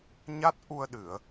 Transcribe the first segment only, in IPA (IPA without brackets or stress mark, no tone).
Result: ɲ